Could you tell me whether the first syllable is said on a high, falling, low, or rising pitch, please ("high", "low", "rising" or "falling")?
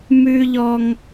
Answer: high